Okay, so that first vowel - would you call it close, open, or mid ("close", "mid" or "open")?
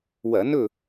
open